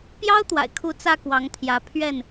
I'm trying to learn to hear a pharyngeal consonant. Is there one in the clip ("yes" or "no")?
no